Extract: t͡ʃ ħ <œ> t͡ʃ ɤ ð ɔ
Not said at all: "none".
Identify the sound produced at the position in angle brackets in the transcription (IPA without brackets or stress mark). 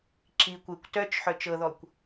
œ